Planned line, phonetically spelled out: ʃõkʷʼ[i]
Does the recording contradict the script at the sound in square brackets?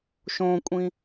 yes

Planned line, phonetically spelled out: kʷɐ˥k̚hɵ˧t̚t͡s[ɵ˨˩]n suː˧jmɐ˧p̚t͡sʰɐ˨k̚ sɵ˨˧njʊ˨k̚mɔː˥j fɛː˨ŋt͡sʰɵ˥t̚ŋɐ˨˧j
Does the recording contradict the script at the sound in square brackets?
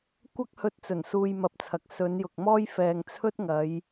no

